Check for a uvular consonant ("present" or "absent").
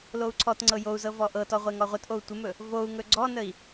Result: present